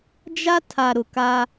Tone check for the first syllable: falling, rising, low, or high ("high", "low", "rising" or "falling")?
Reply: high